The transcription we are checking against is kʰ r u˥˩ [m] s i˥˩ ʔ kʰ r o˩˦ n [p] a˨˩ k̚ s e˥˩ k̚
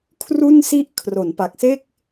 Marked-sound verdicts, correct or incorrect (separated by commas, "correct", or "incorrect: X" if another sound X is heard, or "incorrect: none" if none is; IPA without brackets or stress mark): incorrect: n, correct